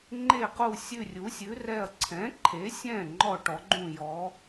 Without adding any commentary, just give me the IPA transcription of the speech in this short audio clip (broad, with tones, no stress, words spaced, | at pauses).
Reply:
ŋ͡ǃe˧˩qu˧˩ sʲʉ˧˩rʲu˩˧sʲʉ˩˧rɛ˧˩ɐ̯ ǀʰɛ̃˩˧ǃʰe˩˧sʲɛ̃˧˩ ŋ͡ǃɔ˧˩ʈɔ˩˧ɡ͡ǃũ˧˩jɔ˩˧